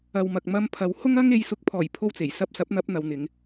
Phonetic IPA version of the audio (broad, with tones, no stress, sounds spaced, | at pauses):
ɐ˨ w m ɐ˨ k̚ m ɐ˧ m pʰ ɐ˨˧ w h ʊ˥ ŋ ɐ˥ ŋ e˨˧ j s ʊ˨˥ k̚ pʰ ɔː˨˩ j pʰ o˥ w t͡s e˨˩ j s ɐ˧ p̚ s ɐ˨˥ p̚ n̪ ɐ˨˥ p̚ n̪ ɐ˨˧ w n̪ ɪ˨˧ ŋ